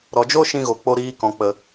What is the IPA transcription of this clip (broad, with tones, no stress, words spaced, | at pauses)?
ɾɔ˨d͡ʒo˦ʃĩ˧ɣo˨ k͡po˧ɾiː˧kɔ̃˨ k͡pə˨